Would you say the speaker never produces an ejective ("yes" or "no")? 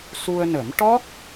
yes